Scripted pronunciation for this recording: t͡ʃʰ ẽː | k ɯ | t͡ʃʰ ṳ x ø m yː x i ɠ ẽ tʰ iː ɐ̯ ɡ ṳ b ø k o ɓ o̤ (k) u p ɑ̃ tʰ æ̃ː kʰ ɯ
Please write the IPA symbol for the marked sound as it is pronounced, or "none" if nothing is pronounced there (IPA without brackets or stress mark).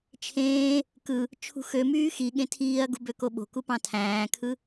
k